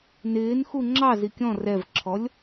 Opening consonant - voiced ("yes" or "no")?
yes